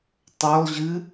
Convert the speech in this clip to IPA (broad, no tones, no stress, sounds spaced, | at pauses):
tˤ ø lˠ ʑ ɨ